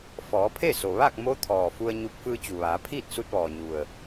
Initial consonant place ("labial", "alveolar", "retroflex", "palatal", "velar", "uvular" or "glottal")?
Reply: labial